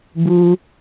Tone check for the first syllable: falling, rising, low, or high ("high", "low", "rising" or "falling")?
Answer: high